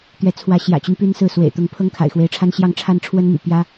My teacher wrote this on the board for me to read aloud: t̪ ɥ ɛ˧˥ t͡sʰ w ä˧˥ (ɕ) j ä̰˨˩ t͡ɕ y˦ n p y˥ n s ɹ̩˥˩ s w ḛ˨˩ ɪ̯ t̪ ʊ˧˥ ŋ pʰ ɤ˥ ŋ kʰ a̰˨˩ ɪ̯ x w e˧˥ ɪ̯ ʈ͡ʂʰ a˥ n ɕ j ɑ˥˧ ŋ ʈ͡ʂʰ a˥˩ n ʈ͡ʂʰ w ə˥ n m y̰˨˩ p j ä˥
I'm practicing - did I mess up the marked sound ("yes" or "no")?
no